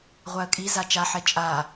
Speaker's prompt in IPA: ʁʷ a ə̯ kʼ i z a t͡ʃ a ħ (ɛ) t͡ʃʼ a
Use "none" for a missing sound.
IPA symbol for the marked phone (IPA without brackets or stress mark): ɛ